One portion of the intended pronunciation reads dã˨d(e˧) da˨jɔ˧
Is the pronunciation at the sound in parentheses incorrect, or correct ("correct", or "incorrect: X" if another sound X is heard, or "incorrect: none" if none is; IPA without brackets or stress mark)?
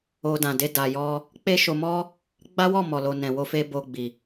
correct